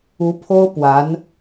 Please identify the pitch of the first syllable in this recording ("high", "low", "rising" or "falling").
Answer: rising